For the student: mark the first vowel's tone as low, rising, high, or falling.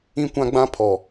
high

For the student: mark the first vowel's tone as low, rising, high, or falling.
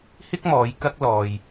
high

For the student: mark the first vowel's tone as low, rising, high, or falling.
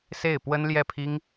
falling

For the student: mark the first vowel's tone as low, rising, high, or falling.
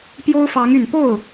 high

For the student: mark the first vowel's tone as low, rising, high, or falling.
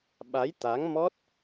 rising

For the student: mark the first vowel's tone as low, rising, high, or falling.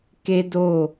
high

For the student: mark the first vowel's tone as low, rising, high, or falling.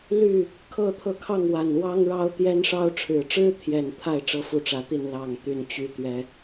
falling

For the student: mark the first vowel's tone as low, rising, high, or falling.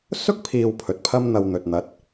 high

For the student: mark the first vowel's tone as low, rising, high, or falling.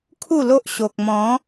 falling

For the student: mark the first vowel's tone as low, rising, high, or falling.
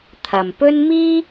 low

